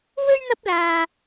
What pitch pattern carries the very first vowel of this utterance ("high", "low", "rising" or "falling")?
high